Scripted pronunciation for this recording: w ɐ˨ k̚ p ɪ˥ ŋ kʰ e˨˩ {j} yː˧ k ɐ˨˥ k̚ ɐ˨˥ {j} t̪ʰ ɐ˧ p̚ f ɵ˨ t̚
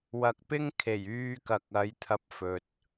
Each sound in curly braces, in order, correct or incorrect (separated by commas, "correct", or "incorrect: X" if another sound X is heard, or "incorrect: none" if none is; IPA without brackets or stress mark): correct, correct